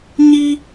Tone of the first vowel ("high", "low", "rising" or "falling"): high